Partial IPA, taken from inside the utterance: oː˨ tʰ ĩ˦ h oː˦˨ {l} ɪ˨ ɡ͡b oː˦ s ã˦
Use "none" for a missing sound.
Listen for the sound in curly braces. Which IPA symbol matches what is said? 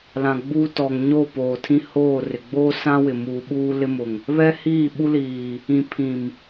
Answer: r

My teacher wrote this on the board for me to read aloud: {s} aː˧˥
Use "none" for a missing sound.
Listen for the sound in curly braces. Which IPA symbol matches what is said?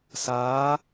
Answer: s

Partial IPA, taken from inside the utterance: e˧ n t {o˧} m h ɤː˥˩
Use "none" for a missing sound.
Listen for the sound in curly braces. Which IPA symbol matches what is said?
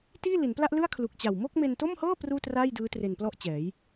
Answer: o˥˩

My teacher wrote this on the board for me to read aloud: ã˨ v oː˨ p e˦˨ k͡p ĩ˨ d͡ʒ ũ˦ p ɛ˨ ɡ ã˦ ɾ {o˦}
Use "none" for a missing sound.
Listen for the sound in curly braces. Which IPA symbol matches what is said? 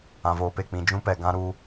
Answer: u˦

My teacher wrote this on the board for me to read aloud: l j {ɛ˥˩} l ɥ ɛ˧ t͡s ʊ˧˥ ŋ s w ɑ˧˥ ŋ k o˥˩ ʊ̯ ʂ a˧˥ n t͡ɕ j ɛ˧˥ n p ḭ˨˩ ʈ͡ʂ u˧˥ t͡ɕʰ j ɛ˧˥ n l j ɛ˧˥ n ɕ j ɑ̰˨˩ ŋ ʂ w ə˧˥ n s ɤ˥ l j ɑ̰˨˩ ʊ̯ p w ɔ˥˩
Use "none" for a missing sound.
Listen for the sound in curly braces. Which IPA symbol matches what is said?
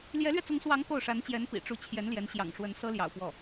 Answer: ɛ˧˥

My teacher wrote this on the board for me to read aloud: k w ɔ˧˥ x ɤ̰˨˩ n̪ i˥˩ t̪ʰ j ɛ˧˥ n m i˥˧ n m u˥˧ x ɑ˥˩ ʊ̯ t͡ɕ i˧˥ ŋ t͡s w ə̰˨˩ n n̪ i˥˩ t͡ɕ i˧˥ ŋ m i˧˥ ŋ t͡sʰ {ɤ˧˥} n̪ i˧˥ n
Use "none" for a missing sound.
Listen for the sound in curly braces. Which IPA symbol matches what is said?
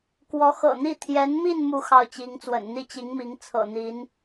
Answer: ɤ̰˨˩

